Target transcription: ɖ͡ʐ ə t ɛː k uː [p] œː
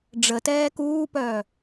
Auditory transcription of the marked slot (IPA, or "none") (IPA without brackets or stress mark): p